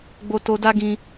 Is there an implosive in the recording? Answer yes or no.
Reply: no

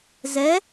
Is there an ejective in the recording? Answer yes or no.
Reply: no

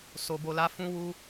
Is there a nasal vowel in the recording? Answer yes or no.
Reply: yes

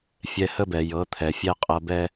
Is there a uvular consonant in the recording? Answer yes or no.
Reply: yes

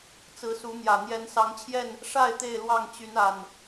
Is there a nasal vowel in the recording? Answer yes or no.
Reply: no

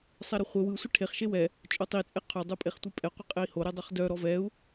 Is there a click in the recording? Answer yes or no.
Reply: no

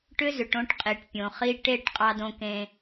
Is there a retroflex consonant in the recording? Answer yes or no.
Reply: yes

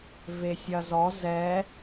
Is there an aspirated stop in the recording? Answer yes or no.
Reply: no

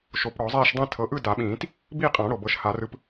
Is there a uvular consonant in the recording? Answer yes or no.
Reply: yes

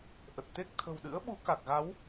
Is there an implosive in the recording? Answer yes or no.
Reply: yes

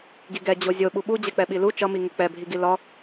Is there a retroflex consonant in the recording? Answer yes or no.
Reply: no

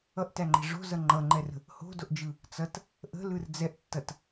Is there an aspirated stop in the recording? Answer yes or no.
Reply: no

